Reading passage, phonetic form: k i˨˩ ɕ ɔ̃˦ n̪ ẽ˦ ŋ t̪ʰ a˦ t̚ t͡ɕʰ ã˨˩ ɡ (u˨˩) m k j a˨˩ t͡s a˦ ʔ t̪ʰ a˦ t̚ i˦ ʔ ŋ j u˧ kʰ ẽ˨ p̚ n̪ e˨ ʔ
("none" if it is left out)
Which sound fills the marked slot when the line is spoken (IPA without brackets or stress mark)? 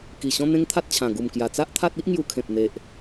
u˨˩